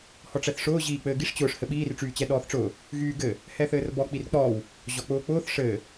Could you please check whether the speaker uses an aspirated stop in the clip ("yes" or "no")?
no